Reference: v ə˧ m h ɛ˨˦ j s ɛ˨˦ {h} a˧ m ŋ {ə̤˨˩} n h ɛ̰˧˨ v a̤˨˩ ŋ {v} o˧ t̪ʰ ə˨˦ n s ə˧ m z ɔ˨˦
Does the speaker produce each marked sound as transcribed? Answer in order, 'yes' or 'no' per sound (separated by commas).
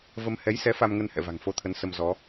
no, no, no